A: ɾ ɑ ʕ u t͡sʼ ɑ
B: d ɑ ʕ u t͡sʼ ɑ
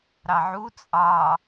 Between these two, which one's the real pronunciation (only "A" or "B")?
A